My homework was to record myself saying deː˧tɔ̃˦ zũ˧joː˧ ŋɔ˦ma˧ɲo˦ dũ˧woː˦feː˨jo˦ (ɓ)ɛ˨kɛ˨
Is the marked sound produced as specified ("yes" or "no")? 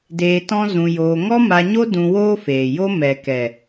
no